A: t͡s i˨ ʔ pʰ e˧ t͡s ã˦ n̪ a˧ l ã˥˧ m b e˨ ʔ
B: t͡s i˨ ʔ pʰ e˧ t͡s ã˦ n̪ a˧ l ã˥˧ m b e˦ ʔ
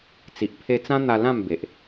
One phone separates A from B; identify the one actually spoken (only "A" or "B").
A